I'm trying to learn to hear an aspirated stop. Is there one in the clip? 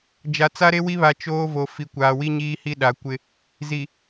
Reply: no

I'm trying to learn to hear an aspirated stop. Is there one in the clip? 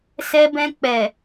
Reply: no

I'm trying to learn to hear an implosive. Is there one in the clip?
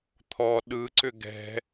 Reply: yes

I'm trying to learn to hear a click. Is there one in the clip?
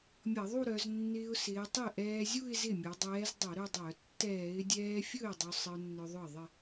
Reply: no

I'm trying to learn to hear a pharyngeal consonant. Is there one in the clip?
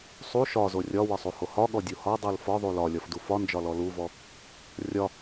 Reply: no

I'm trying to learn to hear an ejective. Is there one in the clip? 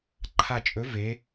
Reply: yes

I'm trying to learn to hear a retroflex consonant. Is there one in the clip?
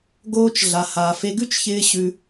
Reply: no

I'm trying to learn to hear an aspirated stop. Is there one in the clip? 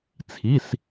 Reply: yes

